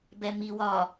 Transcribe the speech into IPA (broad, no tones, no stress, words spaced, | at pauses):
bɛmi wɒ